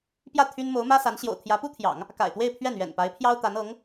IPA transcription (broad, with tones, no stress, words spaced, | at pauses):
pjä˥˩ t̪ʰy˥n mo˧˥ʊ̯mä˥sa˧˥n ɕjo̰˨˩ʊ̯t̪ʰjä˧˥pu˥t̪ʰjɑ̰˨˩˦ŋ | ka̰˨˩ɪ̯t̪we˥˧ɪ̯ pʰɥɛ˥˩nɥɛ̰˨˩npa˧˥ɪ̯pʰjɑ˥ʊ̯ t̪a˧˥nɤ˧˥ŋ